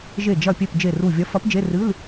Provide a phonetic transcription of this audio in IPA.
ʒe˧˩d͡ʒɐ˧˩pʲe˧˩p d͡ʒe˧˩ru˧˩vʲɐ˧˥ fɐ˧˥pd͡ʒe˧˥˧rɨ˧˥˧l

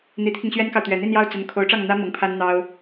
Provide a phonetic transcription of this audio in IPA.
n̪i˧˥t̪ʰi˧ŋɕɥɛ˥nkɑ˨ʊ̯ t̪ɥɛ˨˩n̪i˥˧njɑ˥˩ʊ̯ t͡sə˧˥nkʰo˧˥ʊ̯ʈ͡ʂɑ˥˩ŋ n̪ä˥ mɤ˧˥ŋpʰa˥n n̪ɑ˥ʊ̯

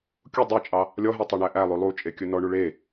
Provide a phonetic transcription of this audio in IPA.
kʲu dˤet͡ʃʼɑ | lʲɔɦɛ tˤeɳæʔælˠʉ lˠut͡ʃʼe kʲɵnɔɳu ɭe

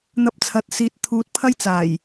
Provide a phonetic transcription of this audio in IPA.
n̪ɐ˥p̚t͡sʰɐ˧t̚siː˧t̚ t̪ʰuː˨˥t̚pʰɐ˥jt͡saː˨˩j

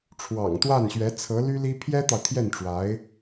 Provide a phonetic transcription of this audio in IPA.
ʈ͡ʂʰwɑ̰˨˩ŋt̪wa˥˩nɕɥɛ˧˥ t͡sʰɤ˧˥ly˥ li˥ pʰjɛ˥t̪ɑ˨ʊ̯ t̪ʰjɛ˥˩nʈ͡ʂwa˧˥ɪ̯

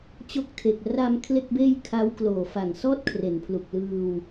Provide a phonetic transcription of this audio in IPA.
t͡ɕo˦˥k̚tʰe˨˩k̚ ra˧m kʰle˥˩k̚beː˥˩j kʰa˦˥w kloː˨˩fa˨˩ŋsɔː˥˩t̚ kʰre˩˦npʰlu˨˩k̚ lɯː˧w

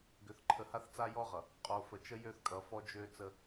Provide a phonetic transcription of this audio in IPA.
ɡʏ˨θǃʰə˨ha˦θ t͡sa˦jɔ˦ʁʌ˨ | qʼo˨fə˨t͡ʃə˦ jø˦θ kʼʌ˨fɔ˦d͡ʒø˦t͡sə˦

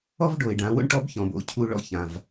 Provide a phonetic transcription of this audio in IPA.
ɔ˥vɖo˩ɪ̯ɖã˩˧ wo̰˥ɳ ʈɔ˧˥bçɔ̃˩bo̰˩˧ cʰu˧ɭɔ̰˧çã˩v

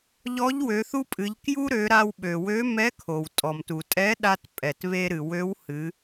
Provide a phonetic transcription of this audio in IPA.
ʎɔ˧˥ʎwø˩˧θu˥pʼɨ˩˧ʎ kju˥ɾø˩˧ ɾa˧wɓø˩wø˧˥ mɛ˧˥kʰo˩w tʼɔ˩mtu˩tʼɛ˧˥ ɗa˧t pʼɛ˩tβe˧ɾɨ˩ wø˧˥whɨ˩˧

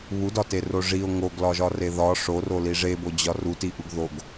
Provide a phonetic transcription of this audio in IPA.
βudɒtero ʐio̯ ŋoɡlɒʒɒre ðɒ ʂoroli ʐebod͡ʑɒ rutiʔuɡ ðoɡ

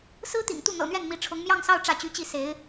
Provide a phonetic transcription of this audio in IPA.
sɹ̩˥t̪ḭ˨˩ŋt̪u˥˩ n̪ɤ̰˨˩n̪ɥɛ˥˩n mi˧˥ʈ͡ʂʰʊ˧˥ŋ mjɑ˥˧ŋsɑ˥˧ʊ̯ ʈ͡ʂä˥˩t͡ɕy˧˥t͡ɕi˥˩se˧˥ɪ̯

